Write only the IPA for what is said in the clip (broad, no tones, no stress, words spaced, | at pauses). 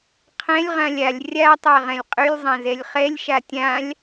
qʰɛ̃lʲʁãlʲ alʲ rʲatˤa ʁɛ̃lʲqʼylʲzˤã zɛlʲχɛlʲʃa tʲãlʲ